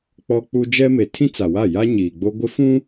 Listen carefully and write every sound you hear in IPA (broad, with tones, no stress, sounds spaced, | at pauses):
k͡p ɔ˦ k͡p u˦ d͡ʒ ɛ˦ m e˨ tʰ ĩ˦ t͡s a˨ w a˦˨ j a˦ ɲ iː˨ ɡ͡b o˦ ɡʷ ɪ˦ f ũ˦